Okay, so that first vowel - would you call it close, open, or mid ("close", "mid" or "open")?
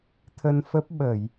mid